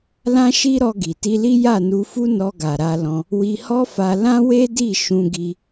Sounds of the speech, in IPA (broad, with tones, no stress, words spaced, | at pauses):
lã˦ʃi˦ɾɔ˧ ɡi˨ ti˧li˦ ja˦˨nu˧fu˦ nɔ˧ɡa˨ɾa˧lɔ̃˧ | wi˧hɔ˦fa˧ lã˦we˦di˦˨ ʃũ˧ ɡi˦